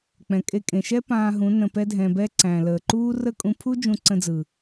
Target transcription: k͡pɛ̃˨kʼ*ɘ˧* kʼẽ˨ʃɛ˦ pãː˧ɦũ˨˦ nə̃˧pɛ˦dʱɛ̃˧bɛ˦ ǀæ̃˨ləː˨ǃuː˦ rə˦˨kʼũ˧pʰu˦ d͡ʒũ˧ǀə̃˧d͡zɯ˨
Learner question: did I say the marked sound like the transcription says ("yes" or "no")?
no